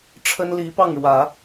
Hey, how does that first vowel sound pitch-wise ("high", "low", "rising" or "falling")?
high